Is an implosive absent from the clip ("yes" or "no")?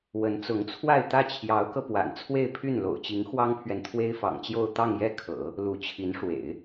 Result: yes